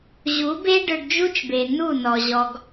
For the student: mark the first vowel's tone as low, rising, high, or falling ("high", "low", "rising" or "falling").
rising